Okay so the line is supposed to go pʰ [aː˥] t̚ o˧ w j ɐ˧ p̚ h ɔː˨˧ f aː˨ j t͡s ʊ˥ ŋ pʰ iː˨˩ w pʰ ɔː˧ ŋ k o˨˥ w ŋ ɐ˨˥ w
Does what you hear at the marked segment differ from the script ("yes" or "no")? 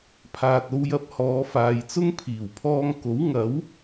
yes